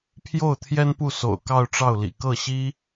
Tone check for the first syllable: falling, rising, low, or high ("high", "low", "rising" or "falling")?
falling